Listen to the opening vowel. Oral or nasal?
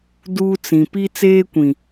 oral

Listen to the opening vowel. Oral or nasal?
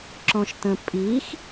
nasal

